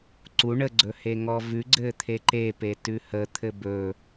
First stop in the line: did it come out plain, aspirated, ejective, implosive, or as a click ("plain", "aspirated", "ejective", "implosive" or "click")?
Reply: click